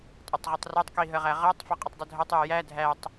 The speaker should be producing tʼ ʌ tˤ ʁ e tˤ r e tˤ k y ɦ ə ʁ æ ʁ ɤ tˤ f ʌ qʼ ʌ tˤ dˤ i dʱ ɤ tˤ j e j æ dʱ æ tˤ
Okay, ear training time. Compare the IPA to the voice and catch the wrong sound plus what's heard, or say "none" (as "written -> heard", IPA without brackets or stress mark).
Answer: y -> i